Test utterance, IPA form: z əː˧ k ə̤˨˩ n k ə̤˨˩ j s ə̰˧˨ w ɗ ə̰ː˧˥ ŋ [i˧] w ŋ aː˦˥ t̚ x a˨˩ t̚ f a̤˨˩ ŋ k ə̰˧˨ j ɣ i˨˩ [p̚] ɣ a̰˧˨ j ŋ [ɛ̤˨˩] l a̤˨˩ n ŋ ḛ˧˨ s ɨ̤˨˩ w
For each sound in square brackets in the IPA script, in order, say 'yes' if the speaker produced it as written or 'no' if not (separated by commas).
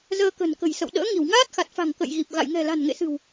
no, yes, yes